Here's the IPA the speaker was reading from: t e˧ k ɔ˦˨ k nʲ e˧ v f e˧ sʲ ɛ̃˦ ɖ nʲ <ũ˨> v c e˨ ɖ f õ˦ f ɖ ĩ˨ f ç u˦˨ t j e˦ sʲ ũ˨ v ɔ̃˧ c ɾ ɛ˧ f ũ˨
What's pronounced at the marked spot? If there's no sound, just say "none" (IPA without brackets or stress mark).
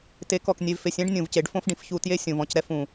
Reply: ũ˨